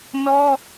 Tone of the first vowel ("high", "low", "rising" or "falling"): high